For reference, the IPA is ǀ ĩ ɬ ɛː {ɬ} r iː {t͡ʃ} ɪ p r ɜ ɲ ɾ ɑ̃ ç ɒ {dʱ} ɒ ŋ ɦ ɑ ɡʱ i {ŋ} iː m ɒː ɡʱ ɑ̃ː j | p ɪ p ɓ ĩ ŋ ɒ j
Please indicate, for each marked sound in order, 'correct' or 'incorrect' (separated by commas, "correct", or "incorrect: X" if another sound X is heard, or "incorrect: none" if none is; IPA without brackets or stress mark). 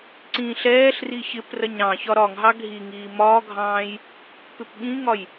correct, incorrect: ç, incorrect: ɾ, correct